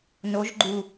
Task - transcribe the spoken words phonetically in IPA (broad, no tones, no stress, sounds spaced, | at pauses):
n o ʒ ɡ͡ǃ u